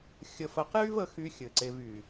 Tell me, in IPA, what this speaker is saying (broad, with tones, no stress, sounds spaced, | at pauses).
xʲ ə˨ f ə˨ q j y˦ v ə˨˦ x y˧ xʲ ɘ˨ ǀ e˧ v y˨